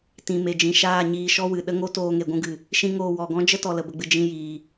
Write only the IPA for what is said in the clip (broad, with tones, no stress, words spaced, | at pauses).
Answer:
tĩ˨me˨ d͡ʒĩ˨ʃaː˦˨ ɲiː˧ʃɔ˦wɨ˨ ɗə˦ŋo˦toː˧ ŋe˨ɡʷũ˧ɡɨ˨ | ʃĩ˦ŋoː˧ wɔ˨ɡɔ̃˦d͡ʒə˦tɔ˨ lə˨bə˨ɡ͡bɨ˨ d͡ʒĩ˧jiː˨